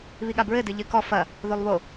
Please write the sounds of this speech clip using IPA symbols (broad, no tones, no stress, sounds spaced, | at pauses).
β i ɠ a b ɹ ɘ d ɨ ʎ ɨ k ɔ f ɐ | ð o lˠ β o